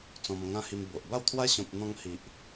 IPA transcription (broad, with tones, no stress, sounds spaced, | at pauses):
t͡s ɔ̃˧ m ŋ ã˦ h i˧ m b o˨ ʔ b a˥˧ w t̪ʰ w a˦ ɕ ɔ̃˨ p̚ n̪ ɔ̃˧ ŋ h i˨ ʔ